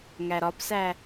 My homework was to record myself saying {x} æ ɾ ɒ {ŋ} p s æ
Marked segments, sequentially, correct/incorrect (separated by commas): incorrect, incorrect